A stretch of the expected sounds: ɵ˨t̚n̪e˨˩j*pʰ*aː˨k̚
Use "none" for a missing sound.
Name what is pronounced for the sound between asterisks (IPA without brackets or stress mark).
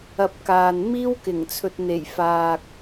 f